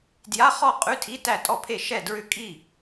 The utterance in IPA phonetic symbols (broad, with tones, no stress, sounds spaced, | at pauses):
d j a˧˥˧ χ ɔ˥˨ qʼ ʉ˧˥˧ tʰ i˧˥˧ t æ˥˨ tʼ ɔ˥˨ pʰ e˥˨ ʃ ɛ˥˨ d ɹ ʏ˥˨ kʼ i˥˨